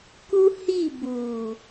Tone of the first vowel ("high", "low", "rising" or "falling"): high